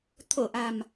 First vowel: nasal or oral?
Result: oral